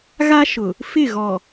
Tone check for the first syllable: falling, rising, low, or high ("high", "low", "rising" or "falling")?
high